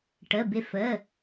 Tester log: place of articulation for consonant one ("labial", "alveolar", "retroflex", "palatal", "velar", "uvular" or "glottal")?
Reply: retroflex